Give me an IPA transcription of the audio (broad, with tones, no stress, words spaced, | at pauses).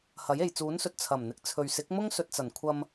hɐ˨˥je˨j t͡suː˨˥nsɵ˨t̚ t͡sʰɐ˨˩mn̪ɪ˨˥k̚ t͡sʰɵ˨ɥsɪ˨˥k̚mʊ˥ŋ sɵ˨t̚t͡sɐ˨˩nkʷʰɐ˧m